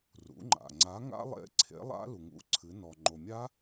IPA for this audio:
r ṵ˩˧ ŋ͡ǃ a̰˩ ŋ͡ǀ a˨˥ ŋ a̰˦˥ lˠ ḛ˨˥ ǀʰ ḛ˨˥ lˠ a̰˦˥ l u˩ ŋ ṵ˨˥ ǀʰ ɨ˩˧ n ɔ˩ ŋ͡ǃ o˩ mʲ a˦˥

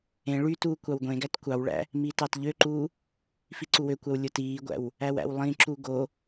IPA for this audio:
ẽ ɭ y t uː kʷ ɑ w ɡʷ ẽ ɡ æ t kʷ ɑ w ɭ æ̰ | m iː t ɑ t ʎ ø ǃ uː | f i ǀ u w ø kʷ æ w lʲ o t iː ɡʷ æ̰ w | æ w æ̰ w lˠ ĩ ǁ u ɡ o

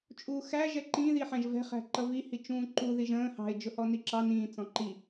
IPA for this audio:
t͡ʃʼ uː x æ ʒ ɛ ǃ ĩ ð i ħ æ̃ ʒ v ɛ̤ χ æ̤ ǃ ʌ v i h i t͡ʃ ũː ǃ u ð i ʒ ə̃ː h ɑ̤ ɪ̯ d͡ʒ ʊ h ɔ n i ǁ ɑ n ĩː t͡s ɔ̃ ǃ i

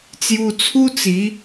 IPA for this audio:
t͡s j u˧ t͡sʰ u˦ t͡s i˨˦

